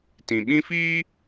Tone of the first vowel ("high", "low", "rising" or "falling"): low